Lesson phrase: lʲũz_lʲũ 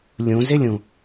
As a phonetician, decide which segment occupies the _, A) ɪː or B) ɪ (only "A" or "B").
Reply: B